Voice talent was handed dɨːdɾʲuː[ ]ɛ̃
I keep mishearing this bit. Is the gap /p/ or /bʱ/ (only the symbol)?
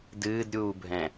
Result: bʱ